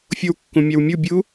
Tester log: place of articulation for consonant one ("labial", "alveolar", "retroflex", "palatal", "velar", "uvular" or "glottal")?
labial